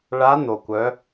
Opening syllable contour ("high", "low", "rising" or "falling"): rising